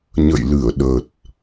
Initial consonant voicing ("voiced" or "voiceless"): voiced